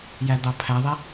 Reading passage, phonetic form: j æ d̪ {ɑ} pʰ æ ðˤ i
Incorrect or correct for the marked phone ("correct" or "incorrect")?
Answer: correct